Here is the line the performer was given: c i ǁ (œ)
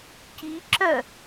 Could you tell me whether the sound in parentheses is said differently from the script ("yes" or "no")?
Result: no